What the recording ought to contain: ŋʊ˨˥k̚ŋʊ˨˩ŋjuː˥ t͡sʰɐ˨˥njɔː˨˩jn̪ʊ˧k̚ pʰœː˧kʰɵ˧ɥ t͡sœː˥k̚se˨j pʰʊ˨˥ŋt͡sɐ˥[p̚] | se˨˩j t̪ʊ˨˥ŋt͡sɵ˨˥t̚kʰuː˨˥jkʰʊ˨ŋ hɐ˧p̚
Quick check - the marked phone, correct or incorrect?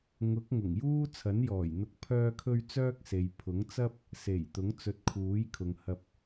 correct